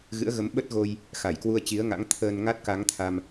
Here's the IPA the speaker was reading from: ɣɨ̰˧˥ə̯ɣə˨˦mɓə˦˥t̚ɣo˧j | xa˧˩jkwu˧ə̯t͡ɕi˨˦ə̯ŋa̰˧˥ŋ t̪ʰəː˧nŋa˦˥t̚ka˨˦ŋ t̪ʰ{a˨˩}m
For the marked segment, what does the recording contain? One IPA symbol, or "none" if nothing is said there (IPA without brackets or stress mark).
a˧